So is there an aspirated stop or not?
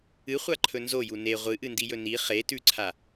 yes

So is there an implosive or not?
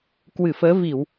no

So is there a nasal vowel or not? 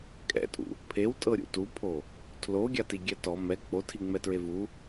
no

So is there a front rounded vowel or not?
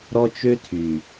yes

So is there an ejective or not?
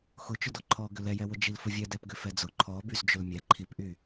no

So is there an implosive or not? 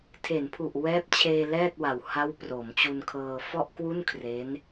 no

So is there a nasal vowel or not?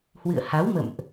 no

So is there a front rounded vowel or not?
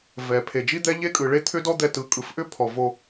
yes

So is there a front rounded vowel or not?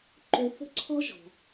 yes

